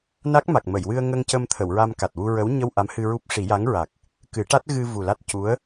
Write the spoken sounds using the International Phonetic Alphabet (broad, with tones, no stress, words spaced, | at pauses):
na˦˥k̚ ma˨˩k̚mə˨˩˨jwɨ˧ə̯ŋə˧ŋ cə˧mt̪ʰə˨˩˨w ɹa˧m ka˨˩t̚wu˧ɹə˧˥w ɲə˧w ʔa˧˥mhɨ˧ɹu˦˥p̚ ʂi˨˩˦ja˧˥ŋɹa˨˩k̚ | kɨ˨˩˦ʈa˦˥t̚ɣɨ˧ vu˨˩la˦˥t̚cu˧˥ə̯